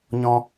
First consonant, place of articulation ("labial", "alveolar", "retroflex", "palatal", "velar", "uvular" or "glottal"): palatal